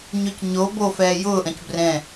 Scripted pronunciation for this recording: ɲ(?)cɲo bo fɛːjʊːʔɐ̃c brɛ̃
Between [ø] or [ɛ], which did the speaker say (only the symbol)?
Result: ø